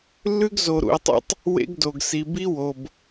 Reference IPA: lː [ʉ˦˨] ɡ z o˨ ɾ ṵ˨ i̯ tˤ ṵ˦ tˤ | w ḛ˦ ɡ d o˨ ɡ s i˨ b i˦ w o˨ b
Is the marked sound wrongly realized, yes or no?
yes